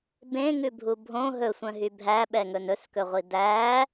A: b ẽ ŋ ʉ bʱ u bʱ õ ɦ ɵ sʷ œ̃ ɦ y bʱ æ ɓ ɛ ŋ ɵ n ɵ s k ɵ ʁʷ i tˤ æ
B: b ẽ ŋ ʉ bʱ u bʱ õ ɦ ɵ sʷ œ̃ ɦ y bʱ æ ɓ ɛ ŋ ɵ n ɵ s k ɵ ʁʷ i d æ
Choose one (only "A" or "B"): B